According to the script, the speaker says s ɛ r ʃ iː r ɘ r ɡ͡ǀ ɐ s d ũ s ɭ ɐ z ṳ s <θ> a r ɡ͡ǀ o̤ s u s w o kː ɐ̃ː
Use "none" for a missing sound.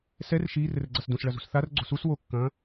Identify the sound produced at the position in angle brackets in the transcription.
θ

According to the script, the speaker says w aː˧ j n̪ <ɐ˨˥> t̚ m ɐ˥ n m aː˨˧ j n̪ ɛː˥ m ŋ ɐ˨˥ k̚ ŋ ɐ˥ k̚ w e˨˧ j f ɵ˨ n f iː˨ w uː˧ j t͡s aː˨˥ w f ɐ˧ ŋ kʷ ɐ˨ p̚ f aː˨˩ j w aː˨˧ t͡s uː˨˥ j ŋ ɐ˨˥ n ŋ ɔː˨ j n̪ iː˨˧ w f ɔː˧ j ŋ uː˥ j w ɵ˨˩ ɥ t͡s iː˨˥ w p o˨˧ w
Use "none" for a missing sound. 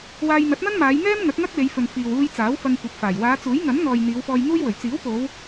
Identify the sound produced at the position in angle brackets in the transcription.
ɐ˨˥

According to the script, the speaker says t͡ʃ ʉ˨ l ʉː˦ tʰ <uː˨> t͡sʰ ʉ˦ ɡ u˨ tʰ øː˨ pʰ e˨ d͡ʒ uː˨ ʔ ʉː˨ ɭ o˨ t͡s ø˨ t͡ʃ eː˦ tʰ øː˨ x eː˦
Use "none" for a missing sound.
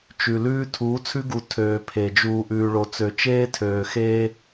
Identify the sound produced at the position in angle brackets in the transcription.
uː˨˦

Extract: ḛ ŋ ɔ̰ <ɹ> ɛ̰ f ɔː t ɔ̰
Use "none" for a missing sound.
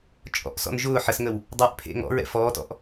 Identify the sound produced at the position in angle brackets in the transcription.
ɹ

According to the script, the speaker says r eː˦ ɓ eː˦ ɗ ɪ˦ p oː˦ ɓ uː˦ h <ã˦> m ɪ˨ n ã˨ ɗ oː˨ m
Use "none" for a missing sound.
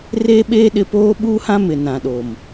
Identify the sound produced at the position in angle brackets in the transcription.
ã˦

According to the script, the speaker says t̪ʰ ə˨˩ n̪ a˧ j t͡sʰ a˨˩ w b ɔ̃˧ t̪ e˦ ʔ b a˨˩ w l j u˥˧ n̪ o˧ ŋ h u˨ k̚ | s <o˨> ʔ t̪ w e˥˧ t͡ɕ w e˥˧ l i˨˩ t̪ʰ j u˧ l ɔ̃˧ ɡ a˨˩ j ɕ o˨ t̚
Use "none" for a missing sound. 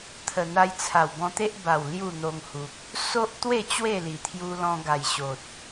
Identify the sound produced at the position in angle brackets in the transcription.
o˦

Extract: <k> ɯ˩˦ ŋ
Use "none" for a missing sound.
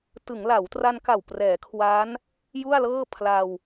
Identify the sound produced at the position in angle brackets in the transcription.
t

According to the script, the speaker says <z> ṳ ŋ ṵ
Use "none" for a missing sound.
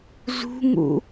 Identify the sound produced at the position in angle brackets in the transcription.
z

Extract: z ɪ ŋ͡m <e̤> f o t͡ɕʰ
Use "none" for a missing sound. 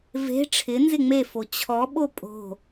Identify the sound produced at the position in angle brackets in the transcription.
e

